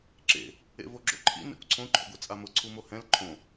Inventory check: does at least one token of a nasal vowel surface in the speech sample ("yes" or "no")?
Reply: yes